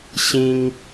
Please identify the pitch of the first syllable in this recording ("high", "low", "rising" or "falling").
high